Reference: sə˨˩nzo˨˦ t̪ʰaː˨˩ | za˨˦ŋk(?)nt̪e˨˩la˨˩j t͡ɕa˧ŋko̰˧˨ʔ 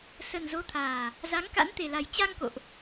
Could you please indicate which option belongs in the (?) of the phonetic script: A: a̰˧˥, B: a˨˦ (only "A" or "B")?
A